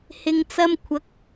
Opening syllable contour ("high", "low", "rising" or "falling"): low